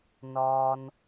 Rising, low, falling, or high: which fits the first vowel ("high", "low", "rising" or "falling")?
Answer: low